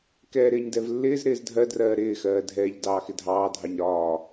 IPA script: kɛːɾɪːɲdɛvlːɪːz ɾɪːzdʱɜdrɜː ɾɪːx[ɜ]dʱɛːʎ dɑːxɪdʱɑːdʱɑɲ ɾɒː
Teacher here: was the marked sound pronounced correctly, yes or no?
no